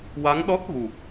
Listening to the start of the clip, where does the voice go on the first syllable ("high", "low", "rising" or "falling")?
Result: rising